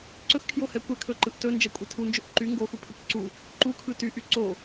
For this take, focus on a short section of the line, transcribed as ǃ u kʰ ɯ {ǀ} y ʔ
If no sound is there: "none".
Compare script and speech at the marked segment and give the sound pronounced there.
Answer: t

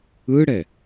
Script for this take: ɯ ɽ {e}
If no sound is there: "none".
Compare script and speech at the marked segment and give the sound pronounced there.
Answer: ɛ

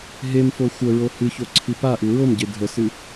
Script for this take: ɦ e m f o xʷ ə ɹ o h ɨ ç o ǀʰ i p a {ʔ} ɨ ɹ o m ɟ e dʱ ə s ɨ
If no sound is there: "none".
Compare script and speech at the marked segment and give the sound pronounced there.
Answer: ʔ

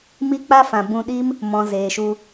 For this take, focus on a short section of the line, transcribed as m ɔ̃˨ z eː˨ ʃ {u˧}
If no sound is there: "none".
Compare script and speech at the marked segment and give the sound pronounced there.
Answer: u˧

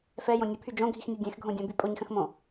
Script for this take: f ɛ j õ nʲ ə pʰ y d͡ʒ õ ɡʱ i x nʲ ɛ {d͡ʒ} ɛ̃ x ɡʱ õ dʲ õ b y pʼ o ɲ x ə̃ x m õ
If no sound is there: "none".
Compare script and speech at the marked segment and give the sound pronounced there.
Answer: dʲ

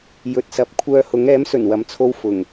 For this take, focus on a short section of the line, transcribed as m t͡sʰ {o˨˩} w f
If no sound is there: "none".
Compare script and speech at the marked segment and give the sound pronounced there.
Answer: o˧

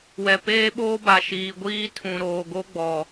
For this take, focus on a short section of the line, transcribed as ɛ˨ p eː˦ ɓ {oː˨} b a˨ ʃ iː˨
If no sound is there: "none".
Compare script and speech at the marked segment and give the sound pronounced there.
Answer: oː˦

